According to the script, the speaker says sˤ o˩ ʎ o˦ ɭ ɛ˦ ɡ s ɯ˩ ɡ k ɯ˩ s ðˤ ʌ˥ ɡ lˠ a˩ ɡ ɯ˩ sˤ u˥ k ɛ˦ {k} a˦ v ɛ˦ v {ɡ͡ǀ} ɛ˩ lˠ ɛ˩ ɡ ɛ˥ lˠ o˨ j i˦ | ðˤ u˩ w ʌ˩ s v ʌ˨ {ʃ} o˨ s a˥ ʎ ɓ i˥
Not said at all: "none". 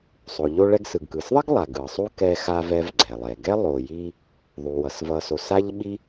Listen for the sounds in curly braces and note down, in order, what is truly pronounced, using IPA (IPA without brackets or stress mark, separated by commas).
x, ɡ͡ǀ, s